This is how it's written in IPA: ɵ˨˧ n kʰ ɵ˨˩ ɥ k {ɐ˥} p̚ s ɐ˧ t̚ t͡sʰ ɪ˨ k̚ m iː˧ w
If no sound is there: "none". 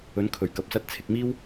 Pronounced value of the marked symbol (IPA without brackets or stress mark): ɐ˨